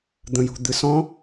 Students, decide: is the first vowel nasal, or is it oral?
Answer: nasal